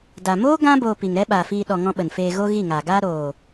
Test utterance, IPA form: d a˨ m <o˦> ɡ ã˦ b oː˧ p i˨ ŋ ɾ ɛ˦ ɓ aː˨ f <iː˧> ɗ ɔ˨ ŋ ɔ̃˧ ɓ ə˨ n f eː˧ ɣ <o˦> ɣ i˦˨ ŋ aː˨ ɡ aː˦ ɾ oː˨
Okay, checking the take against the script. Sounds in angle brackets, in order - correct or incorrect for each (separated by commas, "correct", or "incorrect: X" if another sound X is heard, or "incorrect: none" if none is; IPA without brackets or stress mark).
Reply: incorrect: oː˦, correct, correct